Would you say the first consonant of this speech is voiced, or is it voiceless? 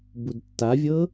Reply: voiced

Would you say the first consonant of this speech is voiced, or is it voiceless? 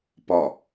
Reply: voiceless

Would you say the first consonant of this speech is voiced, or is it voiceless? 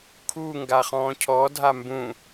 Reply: voiceless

